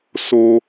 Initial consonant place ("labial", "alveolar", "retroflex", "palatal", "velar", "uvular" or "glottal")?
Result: alveolar